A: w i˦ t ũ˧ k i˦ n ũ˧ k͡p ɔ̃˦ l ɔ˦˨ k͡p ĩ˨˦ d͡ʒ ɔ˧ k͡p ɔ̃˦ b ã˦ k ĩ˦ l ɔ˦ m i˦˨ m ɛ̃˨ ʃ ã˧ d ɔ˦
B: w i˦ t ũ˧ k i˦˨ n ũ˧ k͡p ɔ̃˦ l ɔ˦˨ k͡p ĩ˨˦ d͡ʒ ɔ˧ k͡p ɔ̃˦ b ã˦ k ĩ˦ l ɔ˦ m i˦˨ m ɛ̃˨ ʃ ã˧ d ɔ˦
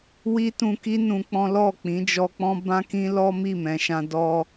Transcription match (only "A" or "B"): A